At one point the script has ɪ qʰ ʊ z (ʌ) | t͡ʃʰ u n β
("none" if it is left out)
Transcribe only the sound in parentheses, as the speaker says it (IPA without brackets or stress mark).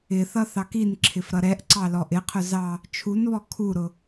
ɑ